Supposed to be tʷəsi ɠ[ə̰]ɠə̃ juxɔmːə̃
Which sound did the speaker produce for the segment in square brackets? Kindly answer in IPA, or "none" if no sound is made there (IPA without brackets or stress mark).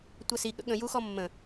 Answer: ə̰